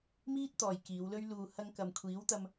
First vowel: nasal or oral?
oral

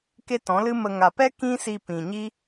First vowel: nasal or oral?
oral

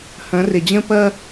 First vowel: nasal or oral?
nasal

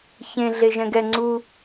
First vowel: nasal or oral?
nasal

